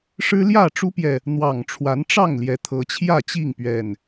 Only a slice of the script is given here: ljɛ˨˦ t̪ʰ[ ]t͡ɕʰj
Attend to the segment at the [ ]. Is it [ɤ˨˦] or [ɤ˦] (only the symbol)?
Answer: ɤ˨˦